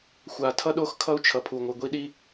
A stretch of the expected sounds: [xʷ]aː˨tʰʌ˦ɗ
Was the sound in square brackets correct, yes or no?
yes